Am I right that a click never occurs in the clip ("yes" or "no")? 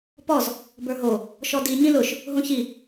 yes